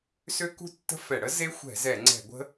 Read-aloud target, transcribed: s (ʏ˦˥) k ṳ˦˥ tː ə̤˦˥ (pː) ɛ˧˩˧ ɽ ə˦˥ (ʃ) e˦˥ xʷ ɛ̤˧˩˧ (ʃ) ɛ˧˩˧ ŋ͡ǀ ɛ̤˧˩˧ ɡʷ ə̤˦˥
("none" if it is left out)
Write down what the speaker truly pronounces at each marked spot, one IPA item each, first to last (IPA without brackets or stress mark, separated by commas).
ʏ˦˥, f, z, z